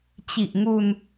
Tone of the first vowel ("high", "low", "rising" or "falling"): low